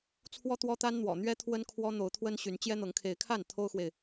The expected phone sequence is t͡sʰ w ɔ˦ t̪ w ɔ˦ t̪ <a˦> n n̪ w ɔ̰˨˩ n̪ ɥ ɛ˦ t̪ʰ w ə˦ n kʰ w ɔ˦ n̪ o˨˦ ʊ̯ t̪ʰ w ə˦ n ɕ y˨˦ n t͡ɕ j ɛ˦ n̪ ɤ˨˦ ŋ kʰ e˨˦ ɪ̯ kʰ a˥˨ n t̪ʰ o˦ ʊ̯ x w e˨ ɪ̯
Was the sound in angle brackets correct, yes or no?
yes